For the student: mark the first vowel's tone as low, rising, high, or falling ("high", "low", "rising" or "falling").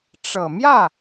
low